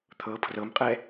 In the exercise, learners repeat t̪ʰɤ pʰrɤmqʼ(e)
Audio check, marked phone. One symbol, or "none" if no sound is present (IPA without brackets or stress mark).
ɛ